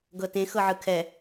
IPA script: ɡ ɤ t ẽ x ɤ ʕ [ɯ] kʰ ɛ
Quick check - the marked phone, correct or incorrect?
correct